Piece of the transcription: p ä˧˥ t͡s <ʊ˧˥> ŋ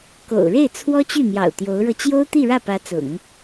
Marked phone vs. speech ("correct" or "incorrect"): incorrect